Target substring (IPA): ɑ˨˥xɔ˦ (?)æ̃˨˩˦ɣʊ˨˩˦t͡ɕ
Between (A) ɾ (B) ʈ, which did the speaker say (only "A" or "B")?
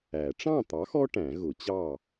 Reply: B